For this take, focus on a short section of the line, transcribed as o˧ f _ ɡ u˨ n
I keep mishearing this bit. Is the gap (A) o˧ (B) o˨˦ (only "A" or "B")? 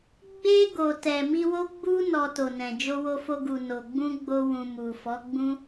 A